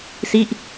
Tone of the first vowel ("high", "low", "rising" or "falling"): falling